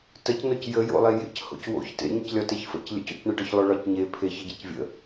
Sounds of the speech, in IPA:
təcnoc jəjo̰lˠe jḛcho̰c wo̰ç tḛɲəclʲɒ teçfə̰c lʲə̰co̰cɳəɖɒç lˠoɭɒcɲe pʰeç əɟecvʲə̰

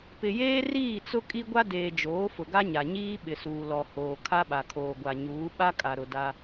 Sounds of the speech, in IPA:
pɪ˨jeː˦riː˦˨t͡sʊ˦ kʼi˦ɡʷa˦deː˨d͡ʒoː˨˦ fʊ˨ɡa˦ɲa˨ɲiː˦ ɓɪ˨suː˨lɔ˨ hoː˨ kʰa˦ɓa˨kʰoː˨ɡʷa˨ ɲuː˨˦ɓa˦kʼa˨ɾʊ˨ da˦

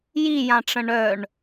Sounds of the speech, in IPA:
jijãʈ͡ʂə̃ ɳœɳ

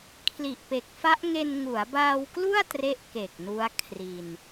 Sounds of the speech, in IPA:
kʰli˨˩ʔpe˨˩k̚fa˦˥ʔŋe˧n ŋu˩˦a̯baː˧wklu˥˩a̯ tre˦˥ʔ ke˨˩k̚nu˦˥a̯ kʰri˧n

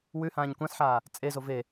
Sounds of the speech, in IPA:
wʉhãːɲ kʷãsħaː | t͡sʼezo ve

